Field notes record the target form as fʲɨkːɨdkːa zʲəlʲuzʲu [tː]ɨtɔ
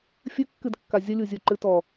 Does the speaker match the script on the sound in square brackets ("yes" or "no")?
no